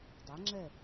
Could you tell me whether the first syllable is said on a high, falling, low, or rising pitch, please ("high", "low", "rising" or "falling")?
rising